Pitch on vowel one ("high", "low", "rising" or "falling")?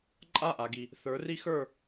falling